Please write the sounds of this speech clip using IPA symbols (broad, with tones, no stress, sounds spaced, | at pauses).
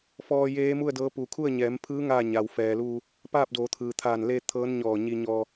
f ɔː˧ j eː˧˥ m u˥˨ ə̯ d ɤː˧˥ p uː˩ kʰ u˥˨ ə̯ ɲ ɛː˩˧ m pʰ ɯː˧˥ ŋ aː˥˨ ɲ a˩ w f ɛː˩ l uː˧ | p aː˥˨ p̚ d oː˩˧ t̪ʰ ɯː˩ t̪ʰ aː˧˩ n l e˧ t̪ʰ ɤː˧˥ n ɲ ɔː˧˩ ɲ i˧ ɲ ɔː˧